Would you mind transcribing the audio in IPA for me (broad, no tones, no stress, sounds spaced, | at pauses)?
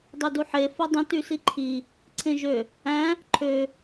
dˤ ø d u ħ e f o dˤ ĩ t y s i ǃʰ i | ǀʰ ẽ ʒ ø | æ̃ | ǃʰ ø